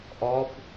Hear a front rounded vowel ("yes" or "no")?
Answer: no